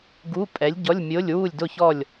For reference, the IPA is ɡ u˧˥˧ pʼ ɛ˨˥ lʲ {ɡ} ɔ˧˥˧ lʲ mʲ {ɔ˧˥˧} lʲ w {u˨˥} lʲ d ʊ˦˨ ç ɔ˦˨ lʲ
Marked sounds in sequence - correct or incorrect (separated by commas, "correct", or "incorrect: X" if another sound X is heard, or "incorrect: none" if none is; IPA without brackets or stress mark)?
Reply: incorrect: ɟ, incorrect: o˧˥˧, incorrect: u˦˨